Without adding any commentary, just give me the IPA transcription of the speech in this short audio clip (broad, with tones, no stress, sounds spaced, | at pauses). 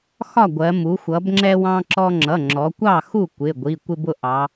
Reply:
x ɒ˥˨ ɡʷ ɜ˩˧ m u˩˧ xʷ ʌ˩˧ b ŋ͡ǁ ɛ˦ w ɑ̃˦ ǁ ɔ˦ ŋ͡ǁ ʌ˩˧˩ ŋ͡ǁ ɔ˩˧ kʷ ɑ˥˨ x u˥˨ kʷ ɪ˩˧˩ ɡʷ i˩˧˩ kʷ ɪ˦ b ʊ˥˨ ʔ ɑ˩˧